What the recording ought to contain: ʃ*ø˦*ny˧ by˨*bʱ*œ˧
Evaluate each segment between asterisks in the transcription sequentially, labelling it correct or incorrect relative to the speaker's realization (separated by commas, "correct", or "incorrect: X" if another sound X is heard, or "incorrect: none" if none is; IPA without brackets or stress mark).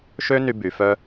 correct, incorrect: f